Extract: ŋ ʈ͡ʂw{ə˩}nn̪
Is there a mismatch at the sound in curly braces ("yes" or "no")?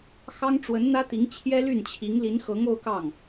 yes